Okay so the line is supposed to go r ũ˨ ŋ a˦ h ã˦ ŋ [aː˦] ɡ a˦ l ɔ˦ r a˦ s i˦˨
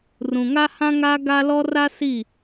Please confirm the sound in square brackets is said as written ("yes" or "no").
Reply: yes